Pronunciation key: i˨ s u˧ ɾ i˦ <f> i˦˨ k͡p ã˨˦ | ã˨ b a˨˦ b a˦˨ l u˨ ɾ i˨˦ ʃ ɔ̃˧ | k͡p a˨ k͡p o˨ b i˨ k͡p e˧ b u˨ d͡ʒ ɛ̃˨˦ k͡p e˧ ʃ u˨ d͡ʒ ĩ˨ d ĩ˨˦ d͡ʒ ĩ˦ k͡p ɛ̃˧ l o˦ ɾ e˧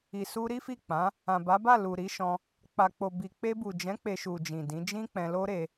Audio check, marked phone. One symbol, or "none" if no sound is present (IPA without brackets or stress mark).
f